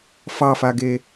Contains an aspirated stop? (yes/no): no